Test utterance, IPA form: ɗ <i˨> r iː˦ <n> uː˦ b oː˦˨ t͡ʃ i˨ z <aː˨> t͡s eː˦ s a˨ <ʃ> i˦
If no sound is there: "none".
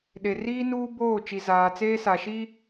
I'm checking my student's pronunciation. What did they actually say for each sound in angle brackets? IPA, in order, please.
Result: e˨, n, aː˨, ʃ

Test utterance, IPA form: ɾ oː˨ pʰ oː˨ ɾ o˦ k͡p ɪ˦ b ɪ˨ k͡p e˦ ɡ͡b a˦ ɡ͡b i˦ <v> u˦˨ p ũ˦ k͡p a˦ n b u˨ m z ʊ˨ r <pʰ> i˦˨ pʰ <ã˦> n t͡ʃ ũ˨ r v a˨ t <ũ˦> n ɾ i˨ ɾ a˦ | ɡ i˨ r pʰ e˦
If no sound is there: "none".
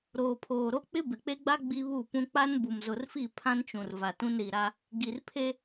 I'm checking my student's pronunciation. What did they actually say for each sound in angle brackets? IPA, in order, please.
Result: β, f, ã˦, ũ˦

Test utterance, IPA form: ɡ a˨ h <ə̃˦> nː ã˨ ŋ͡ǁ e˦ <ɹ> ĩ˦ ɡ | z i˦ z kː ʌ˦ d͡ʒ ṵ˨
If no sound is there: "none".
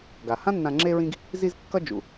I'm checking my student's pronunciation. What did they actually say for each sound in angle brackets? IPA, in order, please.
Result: ã˦, ɹ

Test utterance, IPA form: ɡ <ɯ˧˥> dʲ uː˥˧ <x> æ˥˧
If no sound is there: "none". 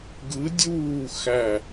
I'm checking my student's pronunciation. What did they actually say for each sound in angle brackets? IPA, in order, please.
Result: ɯ˧˥, x

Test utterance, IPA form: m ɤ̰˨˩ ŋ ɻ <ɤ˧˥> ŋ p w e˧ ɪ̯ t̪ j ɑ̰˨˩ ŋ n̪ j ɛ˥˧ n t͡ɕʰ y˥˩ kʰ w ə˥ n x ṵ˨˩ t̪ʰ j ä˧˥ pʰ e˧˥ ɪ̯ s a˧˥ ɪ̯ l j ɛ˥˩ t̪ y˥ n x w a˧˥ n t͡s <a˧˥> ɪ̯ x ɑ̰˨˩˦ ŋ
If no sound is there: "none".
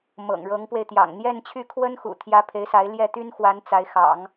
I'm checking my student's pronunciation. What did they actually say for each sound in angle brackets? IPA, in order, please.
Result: ɤ˧˥, a˧˥

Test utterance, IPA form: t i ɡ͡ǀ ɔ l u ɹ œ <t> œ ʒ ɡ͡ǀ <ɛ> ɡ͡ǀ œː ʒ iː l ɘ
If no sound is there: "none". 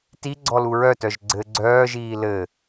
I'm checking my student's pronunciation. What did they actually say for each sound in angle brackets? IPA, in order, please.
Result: t, ɘ

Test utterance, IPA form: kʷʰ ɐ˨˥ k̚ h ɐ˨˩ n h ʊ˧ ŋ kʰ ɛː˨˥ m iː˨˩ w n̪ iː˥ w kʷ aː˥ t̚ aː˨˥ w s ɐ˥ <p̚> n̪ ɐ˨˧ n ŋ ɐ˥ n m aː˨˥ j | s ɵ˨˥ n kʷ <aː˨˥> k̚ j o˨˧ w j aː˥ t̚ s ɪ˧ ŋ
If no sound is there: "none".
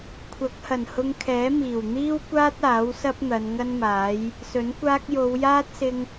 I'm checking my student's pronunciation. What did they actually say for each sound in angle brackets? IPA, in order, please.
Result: p̚, aː˥

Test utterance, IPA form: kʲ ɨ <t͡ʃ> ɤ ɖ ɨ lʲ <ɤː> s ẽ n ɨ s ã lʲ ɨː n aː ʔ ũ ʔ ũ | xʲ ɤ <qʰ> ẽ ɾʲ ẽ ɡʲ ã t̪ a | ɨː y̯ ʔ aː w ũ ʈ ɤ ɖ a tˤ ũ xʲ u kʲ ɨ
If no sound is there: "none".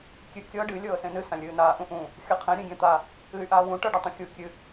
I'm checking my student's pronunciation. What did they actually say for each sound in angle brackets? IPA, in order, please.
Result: kʲ, ɤː, qʰ

